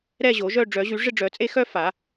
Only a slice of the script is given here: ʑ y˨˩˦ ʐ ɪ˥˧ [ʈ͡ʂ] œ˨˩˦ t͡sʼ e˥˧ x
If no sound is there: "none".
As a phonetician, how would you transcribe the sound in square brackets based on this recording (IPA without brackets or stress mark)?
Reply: ɖ͡ʐ